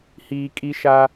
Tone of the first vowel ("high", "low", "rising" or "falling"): low